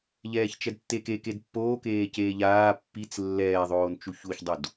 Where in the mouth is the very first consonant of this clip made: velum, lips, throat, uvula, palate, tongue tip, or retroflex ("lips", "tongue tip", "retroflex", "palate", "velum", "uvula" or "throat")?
palate